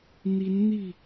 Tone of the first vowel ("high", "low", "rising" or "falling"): rising